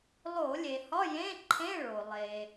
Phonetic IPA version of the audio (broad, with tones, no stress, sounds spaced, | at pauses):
lˠ o˧˩˧ lʲ e˩ h ɒ˧˥˧ j ẽ˧˥˧ ǃʰ ẽ˧˥˧ ɭ o˩ lˠ e˩